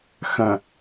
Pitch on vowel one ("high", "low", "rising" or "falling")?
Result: low